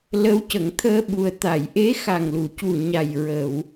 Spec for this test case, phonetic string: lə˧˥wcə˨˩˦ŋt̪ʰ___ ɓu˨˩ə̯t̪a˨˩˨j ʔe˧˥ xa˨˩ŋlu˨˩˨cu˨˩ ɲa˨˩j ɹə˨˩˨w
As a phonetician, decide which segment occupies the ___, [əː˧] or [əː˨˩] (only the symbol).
əː˧